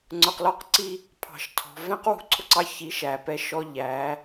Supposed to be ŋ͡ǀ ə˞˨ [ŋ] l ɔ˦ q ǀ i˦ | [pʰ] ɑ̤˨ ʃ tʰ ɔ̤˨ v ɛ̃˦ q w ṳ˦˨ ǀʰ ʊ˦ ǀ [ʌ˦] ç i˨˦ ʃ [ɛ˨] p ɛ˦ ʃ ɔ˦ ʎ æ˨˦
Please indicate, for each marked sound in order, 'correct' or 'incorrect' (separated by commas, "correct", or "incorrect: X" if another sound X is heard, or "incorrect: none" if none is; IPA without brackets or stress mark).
incorrect: q, correct, incorrect: ɑ˦, incorrect: æ˨